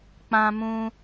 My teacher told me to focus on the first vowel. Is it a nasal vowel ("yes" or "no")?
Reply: yes